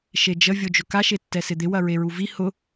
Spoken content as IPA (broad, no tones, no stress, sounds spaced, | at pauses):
ʃ e d͡ʒ ə vʲ o d͡ʒ ʊ k a ʃ e tː ɛ s ɪ d̪ ɪ w ɐ ɹ e ɹ u v i h ʊ